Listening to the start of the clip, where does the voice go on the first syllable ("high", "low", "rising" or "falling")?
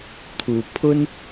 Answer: low